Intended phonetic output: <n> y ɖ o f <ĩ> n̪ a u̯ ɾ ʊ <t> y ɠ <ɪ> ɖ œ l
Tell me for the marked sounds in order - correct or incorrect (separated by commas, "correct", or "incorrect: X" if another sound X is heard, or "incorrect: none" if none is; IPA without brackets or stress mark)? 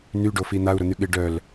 correct, incorrect: i, incorrect: n̪, correct